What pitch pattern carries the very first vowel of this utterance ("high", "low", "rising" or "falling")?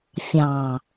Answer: low